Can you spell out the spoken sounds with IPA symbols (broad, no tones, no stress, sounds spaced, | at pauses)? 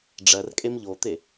ɖ͡ʐ ɜ r kʼ e m ʎ o t̪ e